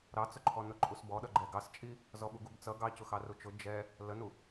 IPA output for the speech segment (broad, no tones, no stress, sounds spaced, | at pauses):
ɾ ɑ t͡s ʊ ǃʰ ɔ n ʊ ǃʼ u s b ɔ ɗ ʌ ɡ͡ǃ ɛ ɡ ɑ s t͡ʃʼ i | z ɔ ɓ u ɡ u b t͡s ʌ ɡ ɑ c ʊ x ɑ r u t͡ʃ ʊ d͡ʒ ɛ | l ə n u